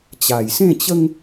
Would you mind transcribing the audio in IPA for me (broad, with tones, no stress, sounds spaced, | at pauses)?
t͡ɕ a˨˩ j s ẽ˥˧ t͡ɕ ə˦ ŋ